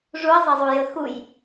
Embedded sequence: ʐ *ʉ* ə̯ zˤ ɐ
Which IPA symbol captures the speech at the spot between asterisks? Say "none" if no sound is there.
u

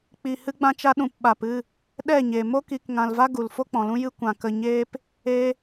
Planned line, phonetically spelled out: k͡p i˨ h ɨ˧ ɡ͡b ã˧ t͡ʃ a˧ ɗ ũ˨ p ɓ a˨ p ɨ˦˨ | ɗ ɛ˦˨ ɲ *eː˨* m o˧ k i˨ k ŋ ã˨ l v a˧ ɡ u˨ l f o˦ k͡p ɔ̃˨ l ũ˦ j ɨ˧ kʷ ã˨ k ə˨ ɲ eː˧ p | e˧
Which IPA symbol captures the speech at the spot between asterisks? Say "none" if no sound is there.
e˨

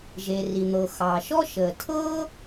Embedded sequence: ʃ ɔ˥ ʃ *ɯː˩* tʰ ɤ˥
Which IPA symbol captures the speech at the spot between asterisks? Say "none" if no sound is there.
əː˩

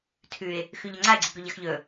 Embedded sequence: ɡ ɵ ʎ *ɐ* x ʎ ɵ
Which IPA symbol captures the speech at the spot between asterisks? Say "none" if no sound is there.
ɐ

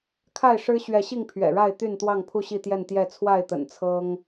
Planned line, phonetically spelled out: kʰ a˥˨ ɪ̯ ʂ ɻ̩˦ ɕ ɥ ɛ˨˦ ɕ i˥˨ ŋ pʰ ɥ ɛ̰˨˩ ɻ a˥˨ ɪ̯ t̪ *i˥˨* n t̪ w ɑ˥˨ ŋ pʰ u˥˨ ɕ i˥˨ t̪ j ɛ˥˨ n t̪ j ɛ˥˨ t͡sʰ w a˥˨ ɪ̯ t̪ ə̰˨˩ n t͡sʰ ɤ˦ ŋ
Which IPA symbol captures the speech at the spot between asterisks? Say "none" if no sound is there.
y˥˨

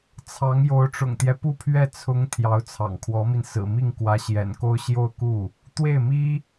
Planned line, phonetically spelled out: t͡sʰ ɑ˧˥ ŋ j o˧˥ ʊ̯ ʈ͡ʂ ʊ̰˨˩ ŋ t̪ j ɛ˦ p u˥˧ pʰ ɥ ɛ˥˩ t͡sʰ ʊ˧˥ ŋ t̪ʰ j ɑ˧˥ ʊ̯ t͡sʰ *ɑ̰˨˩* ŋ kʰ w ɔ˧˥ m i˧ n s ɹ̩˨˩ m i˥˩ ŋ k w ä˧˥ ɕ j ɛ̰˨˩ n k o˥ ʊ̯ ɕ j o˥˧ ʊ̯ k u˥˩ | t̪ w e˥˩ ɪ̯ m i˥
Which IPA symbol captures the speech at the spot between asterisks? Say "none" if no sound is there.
ɑ̰˨˩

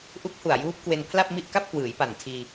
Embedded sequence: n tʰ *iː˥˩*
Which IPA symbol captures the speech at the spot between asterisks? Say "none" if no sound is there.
iː˧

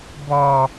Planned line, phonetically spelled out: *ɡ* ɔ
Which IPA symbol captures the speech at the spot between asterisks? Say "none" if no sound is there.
b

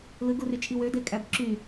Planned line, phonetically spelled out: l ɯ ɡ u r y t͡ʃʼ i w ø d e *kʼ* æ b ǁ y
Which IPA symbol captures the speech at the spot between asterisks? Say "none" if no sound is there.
kʼ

